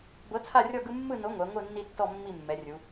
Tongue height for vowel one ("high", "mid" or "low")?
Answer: mid